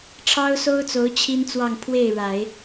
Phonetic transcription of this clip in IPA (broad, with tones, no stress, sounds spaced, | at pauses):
ʈ͡ʂʰ ɑ˥ ʊ̯ s o˥ ʊ̯ t͡s o˧˥ ʊ̯ t͡ɕʰ i˥ n t͡s w ɑ˥˧ ŋ pʰ w e˥˩ ɪ̯ ɻ a˨˩˦ ɪ̯